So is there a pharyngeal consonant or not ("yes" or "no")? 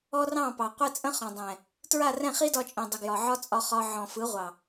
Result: yes